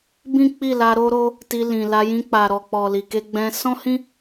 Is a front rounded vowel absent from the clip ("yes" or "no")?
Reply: yes